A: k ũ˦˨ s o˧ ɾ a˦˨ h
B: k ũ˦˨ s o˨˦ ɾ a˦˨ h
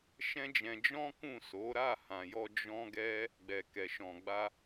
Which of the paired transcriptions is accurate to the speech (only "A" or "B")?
B